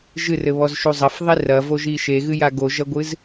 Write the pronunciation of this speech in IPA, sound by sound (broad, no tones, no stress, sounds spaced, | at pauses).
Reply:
ʒ ɨ r ɘ β ɔ z ʃ u zˤ ɐ f ðˤ i r ɐ v o ʒ i ʃ e ɣ ɨ j a ɡ o ʒ ɐ ɡʷ ɨ z